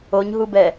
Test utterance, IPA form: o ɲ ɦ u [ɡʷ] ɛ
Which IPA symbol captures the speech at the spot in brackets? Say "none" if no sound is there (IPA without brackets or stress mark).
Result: b